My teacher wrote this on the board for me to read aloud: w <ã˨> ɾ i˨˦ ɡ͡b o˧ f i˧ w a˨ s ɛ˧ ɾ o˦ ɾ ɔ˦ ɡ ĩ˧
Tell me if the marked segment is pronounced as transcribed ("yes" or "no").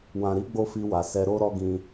yes